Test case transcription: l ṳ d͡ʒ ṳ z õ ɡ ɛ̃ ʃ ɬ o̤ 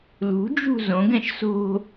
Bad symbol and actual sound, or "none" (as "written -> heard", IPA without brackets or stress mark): ɬ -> s